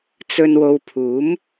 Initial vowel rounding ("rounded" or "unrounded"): rounded